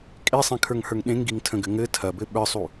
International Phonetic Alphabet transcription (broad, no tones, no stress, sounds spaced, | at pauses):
kʼ e sˤ ẽ kʰ ə˞ ŋ h ə˞ ŋ ɗ ẽ ŋ ɡ i ŋ tʰ ə̃ ɡ ɘ ŋ ɘ tʰ ɐ b ɘ ɓ ə˞ sˤ u